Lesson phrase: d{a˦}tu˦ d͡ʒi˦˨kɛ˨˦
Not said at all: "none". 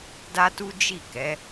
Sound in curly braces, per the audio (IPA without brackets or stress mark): a˦